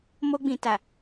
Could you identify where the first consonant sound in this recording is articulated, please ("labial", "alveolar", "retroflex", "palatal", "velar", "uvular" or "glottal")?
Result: labial